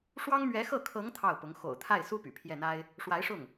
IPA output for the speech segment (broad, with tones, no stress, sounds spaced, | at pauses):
ʂ w ɑ˥ ŋ m ɥ ɛ˧˥ x ɤ˥˩ kʰ ɤ˧˥ ŋ t̪ʰ ɑ˥˩ ʊ̯ p ʊ˧˥ ŋ x o̰˨˩ ʊ̯ t̪ʰ a˥˩ ɪ̯ s u˥ p y̰˨˩ pʰ j ɛ˥˩ n̪ a˥ ɪ̯ | ʂ w a˧˥ ɪ̯ ʂ ʊ˥˩ ŋ